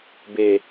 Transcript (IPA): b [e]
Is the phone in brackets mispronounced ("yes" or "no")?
no